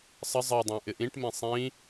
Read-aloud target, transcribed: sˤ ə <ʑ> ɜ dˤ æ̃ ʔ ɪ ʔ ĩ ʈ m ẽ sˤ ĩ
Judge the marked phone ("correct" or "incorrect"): incorrect